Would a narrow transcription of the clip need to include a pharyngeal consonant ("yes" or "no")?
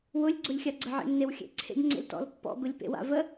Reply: yes